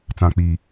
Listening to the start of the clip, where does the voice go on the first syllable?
low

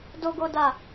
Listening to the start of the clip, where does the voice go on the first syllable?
high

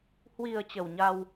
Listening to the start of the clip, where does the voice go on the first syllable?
low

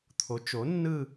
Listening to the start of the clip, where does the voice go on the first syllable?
rising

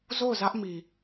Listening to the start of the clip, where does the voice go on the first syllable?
falling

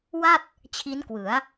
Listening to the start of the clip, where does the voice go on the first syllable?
falling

